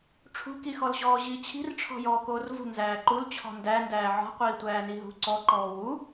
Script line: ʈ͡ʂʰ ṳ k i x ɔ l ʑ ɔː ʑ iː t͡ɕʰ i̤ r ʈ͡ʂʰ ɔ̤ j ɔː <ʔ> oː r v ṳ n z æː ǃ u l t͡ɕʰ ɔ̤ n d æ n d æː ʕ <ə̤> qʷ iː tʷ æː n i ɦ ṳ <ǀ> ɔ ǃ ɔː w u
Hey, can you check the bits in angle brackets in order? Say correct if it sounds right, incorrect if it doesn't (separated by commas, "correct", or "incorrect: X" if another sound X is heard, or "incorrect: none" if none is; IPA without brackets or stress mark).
incorrect: k, incorrect: ɔ̤, correct